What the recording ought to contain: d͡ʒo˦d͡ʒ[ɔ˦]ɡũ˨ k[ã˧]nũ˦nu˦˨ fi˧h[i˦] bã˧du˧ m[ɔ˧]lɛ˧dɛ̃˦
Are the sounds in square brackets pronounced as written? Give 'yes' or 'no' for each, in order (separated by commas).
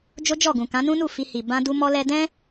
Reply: no, no, no, yes